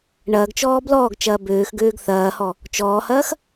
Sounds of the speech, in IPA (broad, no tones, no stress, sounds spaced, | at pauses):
ɳ ɐː ɡ t͡ʃ ɔː b l ɔː ɡ t͡ʃ ɐː b øː x ɡ øː ɡ θ ɐː h ɔ | t͡ʃ ɔː h ɐː x